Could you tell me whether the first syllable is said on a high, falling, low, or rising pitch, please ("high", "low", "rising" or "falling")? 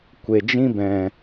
low